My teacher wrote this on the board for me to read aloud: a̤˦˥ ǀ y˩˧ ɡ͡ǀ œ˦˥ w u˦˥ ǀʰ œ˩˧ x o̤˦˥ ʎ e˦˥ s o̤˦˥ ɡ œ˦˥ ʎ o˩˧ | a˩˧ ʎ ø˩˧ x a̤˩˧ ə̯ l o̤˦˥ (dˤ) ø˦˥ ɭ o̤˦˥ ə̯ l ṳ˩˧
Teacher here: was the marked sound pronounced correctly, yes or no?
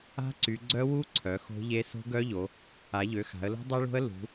yes